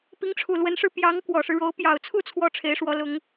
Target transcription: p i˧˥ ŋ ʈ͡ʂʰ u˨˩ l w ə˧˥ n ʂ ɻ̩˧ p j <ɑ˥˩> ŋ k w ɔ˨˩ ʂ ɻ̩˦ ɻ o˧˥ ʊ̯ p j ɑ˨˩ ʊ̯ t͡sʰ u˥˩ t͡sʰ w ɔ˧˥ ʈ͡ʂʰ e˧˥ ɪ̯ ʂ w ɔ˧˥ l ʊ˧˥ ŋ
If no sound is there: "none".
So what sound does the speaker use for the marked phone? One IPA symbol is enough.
ɑ˧˥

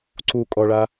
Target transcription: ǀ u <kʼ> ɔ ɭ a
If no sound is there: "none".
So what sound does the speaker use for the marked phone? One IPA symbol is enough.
kʼ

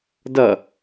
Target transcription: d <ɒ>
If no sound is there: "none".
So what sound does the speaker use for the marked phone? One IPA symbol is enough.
ʌ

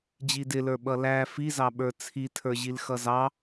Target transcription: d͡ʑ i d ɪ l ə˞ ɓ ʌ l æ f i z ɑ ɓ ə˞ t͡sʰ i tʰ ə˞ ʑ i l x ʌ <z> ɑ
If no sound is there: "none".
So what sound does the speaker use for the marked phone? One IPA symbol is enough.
z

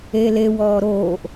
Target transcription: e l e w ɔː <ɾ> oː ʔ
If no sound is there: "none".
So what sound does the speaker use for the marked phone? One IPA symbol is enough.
ɾ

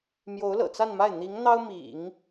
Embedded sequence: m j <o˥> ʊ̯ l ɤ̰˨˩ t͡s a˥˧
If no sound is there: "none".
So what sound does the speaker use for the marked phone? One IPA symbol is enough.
o˧˥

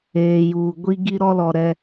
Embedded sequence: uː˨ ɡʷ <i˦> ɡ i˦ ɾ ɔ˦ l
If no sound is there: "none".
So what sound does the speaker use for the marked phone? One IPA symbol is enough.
i˦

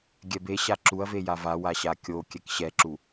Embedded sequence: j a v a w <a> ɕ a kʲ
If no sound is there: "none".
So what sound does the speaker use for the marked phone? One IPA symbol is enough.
a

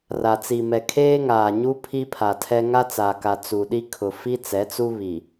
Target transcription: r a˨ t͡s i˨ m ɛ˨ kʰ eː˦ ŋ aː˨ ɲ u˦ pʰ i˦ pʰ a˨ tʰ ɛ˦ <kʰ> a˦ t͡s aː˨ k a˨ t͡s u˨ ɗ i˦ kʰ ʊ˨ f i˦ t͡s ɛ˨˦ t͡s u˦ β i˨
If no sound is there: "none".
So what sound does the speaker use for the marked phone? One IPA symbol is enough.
ŋ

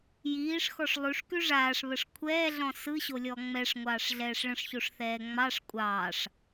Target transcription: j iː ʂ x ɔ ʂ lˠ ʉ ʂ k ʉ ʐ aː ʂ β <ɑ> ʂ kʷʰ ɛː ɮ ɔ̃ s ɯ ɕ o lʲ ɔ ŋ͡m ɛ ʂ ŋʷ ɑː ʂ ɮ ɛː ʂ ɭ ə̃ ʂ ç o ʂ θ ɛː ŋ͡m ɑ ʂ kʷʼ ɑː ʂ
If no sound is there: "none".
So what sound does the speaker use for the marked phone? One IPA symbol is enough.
ə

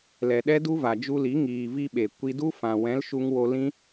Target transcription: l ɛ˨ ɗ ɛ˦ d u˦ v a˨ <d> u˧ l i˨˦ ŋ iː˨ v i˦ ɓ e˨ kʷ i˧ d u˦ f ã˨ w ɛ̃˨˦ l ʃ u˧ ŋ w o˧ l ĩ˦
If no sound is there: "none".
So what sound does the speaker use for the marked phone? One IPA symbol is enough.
d͡ʒ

